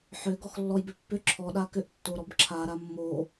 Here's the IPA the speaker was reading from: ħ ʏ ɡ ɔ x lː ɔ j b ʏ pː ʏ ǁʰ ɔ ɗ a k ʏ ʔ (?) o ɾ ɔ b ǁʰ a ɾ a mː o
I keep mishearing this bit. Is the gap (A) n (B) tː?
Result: B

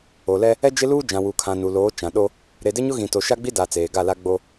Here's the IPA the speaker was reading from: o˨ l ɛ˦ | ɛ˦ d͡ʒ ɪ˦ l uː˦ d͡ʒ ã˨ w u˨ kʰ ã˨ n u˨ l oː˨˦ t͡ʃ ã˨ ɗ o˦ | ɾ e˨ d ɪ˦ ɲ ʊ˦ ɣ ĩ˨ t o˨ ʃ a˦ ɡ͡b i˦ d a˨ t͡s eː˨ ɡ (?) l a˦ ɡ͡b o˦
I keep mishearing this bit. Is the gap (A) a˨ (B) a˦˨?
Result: B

